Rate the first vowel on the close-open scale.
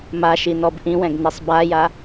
open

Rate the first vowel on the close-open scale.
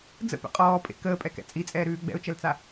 mid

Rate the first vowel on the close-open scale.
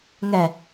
mid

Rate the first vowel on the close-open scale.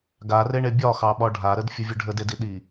open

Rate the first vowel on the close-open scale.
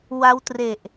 open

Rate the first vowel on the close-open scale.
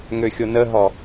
mid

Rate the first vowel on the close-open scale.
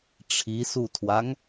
close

